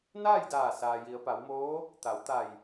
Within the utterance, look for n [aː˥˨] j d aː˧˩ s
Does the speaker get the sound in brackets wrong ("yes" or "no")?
no